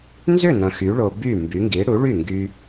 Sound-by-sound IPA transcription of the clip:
n z ʏ˥˨ n ɐ̃˧ x y˨˥ ɭ o˧ b y˥˨ m b y˨˥ ŋ ɡ i˨˥ ɽ u˨˥ ɭ y˥˨ ŋ ɡ y˧

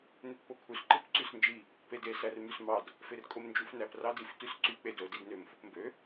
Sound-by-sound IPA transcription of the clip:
n e t p o kʰ u s ǃ ɯ p ǀ y s n d͡ʒ i | p e d e s æ r m y s m ɑ d | f e r kʼ o m n d͡ʒ u f n æ p r ɑ d i f t y s ǀ y k͡p e d o d i d n ø m f o p m b ø

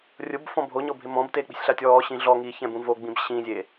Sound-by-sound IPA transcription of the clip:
rʲ ʊ b f ɔ̃ bʱ o ɲ ɔ bʱ ɪ m ɔ̃ b t eː k͡p i̤ sʲ ɬ a tʲ ɔː ɕ ĩ ɮ ɔ ŋ i ç ɛ̃ b ũ v o ɡ͡b ĩ b ɕ ĩ zʲ e

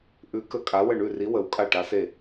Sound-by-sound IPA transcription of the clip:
ʔ ʉ˧˥ k ə˦˨ kʼ a˧˥ w ə˦˨ ɳ ʉ˦˨ r i˧˥ w ə˧˥ w kʼ a˦˨ ʈ a˧˥ s e˦˨

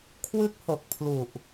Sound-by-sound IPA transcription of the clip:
kʰ w ɯ˦˥ k̚ h o˨˩ k̚ pʰ l u˨˩ ʔ

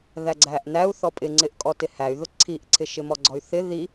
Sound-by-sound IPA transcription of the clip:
ð æ ɡ͡ǀ æ ʔ n æ u̯ θ ɔ pʼ ɪ ŋ͡ǀ ɪ ʔ kʼ ɔ t ɪ h æ y̯ ð ʊ ǀʰ i ʔ ǀʰ ɪ ʃ ɪ m ɔ ɡ͡ǀ ɔ y̯ θ ɪ ð i

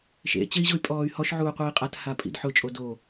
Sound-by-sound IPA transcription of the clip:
ʃ ḛ t͡ɕ e i̯ ʑ ʊ y̯ pʼ ɔː y̯ h ɔ ʃ ʕ uː qʷ iː qʼ a t h a pʼ ḭ d ħ ʊ t͡ʃʼ o d o

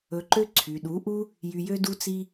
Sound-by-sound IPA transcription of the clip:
ɵ˧ ǃ ø˦ ǀʰ y˨ ɗ u˨˦ ʔ u˦ | j y˧ j ø˦ d u˦ t͡s i˦

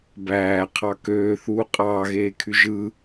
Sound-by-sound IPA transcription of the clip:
b æː qʰ ɑ k øː θ uː qʼ ɑː ɣ eː kʰ y ʒ ɯ

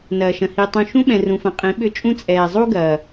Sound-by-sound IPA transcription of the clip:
n ɐː˨ ʃ ɐ̃˨ h i˨ tˤ ũ˨ ʃ ũ˦ ɓ ɛ̃˨ r ũ˨ f ɐ̃˨ qʼ ĩ˨˦ ɓ ʏ˦ t͡ʃʼ ũ˦ t͡sʼ ɛː˨ zˤ u˦ ɡ ɐː˨

